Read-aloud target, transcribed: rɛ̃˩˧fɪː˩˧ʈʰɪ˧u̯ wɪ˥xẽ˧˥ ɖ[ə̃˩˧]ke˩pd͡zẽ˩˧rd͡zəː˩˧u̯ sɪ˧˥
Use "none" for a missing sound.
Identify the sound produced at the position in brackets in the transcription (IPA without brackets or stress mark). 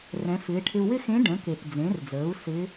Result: ə̃˩˧